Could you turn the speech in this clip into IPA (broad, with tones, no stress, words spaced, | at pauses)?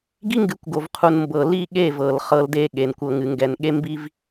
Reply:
ɡi˦ŋɡɨ˨˦kʷɡo˨vqʰu˨n mbɤ˨li˦˨ ɠe˦˨vɤ˨l χɤ˦lde˦ ɠe˨nkʷɤ˨ ŋɨ˨ŋɡɛ˨n ɠe˦mbi˦v